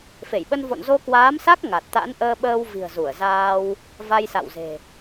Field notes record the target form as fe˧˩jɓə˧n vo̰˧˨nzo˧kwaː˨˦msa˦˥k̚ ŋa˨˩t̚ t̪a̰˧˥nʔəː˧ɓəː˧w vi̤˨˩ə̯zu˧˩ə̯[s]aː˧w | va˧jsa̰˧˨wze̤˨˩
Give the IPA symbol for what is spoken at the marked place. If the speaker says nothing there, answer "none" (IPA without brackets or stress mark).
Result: z